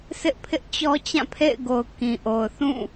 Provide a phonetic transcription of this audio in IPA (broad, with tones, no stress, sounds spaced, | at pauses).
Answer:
s ɪ˦ ʔ pʰ ɪ˦ ʔ t͡ɕ ɔ˦ t͡ɕ ã˦˨ pʰ ḛ˦˨ ɪ̯ ɡ o˨ ʊ̯ k ĩ˨ ʔ o˨ ʊ̯ θ ũ˦˨